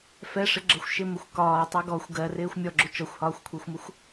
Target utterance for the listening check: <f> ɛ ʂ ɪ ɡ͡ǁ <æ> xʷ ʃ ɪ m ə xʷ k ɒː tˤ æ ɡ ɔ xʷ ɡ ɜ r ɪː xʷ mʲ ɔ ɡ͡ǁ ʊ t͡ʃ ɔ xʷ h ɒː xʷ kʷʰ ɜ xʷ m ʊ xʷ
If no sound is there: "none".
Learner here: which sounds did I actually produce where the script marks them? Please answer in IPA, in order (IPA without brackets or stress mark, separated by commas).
f, ɜ